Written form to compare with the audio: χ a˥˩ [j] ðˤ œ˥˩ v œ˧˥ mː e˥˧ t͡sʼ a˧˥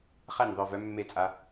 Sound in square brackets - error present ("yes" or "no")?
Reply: yes